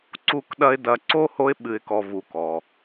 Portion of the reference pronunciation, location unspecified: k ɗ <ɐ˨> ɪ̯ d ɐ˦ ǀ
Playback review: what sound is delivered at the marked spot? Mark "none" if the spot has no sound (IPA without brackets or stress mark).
ɐ˥